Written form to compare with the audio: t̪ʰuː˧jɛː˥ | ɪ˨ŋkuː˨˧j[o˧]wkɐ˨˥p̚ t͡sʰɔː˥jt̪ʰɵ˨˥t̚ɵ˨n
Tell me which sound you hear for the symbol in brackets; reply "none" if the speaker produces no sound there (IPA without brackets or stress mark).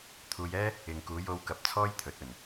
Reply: o˧